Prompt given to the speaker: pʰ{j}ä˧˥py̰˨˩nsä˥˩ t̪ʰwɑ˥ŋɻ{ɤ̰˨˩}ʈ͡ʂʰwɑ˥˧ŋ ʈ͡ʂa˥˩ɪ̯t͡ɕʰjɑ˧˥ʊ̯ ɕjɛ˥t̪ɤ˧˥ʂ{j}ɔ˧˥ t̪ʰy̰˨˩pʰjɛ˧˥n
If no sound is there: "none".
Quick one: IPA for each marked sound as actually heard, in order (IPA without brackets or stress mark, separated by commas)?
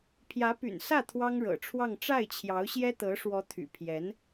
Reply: j, ɤ̰˨˩, w